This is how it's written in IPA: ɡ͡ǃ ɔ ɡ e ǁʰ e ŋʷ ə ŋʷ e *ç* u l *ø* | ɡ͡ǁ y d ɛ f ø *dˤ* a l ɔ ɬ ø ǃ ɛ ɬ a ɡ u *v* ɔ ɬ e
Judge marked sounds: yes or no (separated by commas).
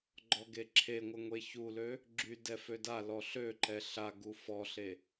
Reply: yes, yes, no, no